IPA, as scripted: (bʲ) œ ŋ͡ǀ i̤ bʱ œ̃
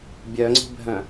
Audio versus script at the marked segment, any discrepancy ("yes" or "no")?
no